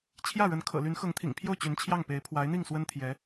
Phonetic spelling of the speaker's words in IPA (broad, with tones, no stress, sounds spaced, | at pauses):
t͡ɕʰ j ä˥˩ ɻ ə˧˥ n kʰ ɤ̰˨˩ l y˧˥ n x ɤ˧˥ ŋ t̪ʰ ḭ˨˩ ŋ pʰ j o˥˩ ʊ̯ t͡ɕ y˧˥ n t͡ɕʰ j ɑ˥˩ ŋ p e˧˥ ɪ̯ pʰ w a˧˥ ɪ̯ n̪ i˥˩ ŋ s w ə˥ n t̪ʰ j ɛ˧˥